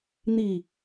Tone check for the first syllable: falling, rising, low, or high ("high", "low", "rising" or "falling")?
low